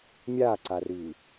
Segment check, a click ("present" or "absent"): present